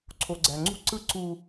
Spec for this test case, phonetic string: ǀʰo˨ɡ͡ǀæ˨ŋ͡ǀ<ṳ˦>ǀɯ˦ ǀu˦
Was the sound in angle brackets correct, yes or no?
yes